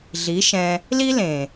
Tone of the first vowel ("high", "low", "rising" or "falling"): rising